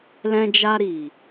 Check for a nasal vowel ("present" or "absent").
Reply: present